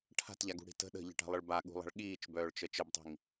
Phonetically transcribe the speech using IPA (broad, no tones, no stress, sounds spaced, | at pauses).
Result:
ʈʰ a̤ t ʎ a ɡ ṳ ɽ i̤ t ə̤ ɗ ə̤ ʎ ə̤ ʈ a̤ lˠ ə ɭ b a ɠ ṳ lˠ a̤ ɭ ɠ iː t͡ʃ b œː ɭ t͡ʃ ə t͡ʃ ə b tˤ i̤ ŋ